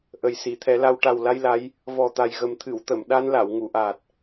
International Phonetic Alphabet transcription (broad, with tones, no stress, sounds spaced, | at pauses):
ʔ ə˨˩ j s i˨˩˨ t̪ʰ ɛ˨˩˦ l a˧ w ʈ a˨˩ w l a˧ j l a˧˥ j | v ɔ˨˩ t̪ a˨˩ j ɣ ə˨˩ m t̪ʰ ɨ˨˩˨ w t̪ ə˨˩˨ m ɗ a˧ n l a˨˩˨ w ŋ u˨˩˨ ʔ aː˨˩ t̚